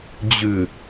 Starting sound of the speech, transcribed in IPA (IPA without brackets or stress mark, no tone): d͡ʑ